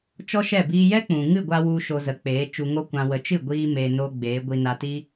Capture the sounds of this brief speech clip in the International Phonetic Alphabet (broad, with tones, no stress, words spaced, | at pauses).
t͡ʃɔ˦ʃɛ˦˨ biː˧jɛ˦k͡pũ˨ ŋɨ˦˨ɡʷa˧ wu˧ ʃo˧zə˨˦k͡peː˨˦t͡ʃu˧ ŋo˦kʷã˧wə˧ t͡ʃɨ˦˨ɡʷiː˧ meː˧no˦ɡ͡beː˨˦ ɡʷi˧na˧ti˦